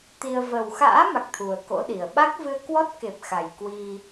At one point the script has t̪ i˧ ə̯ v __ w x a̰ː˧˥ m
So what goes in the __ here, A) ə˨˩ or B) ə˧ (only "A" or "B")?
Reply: A